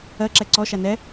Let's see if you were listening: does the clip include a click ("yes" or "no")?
yes